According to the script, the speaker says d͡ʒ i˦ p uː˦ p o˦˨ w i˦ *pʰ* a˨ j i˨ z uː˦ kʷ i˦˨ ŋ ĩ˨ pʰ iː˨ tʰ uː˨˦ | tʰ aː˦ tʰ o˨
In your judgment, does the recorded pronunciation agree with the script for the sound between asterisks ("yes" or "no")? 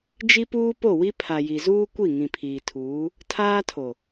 yes